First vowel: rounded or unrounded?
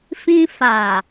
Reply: unrounded